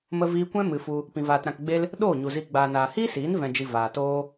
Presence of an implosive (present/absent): present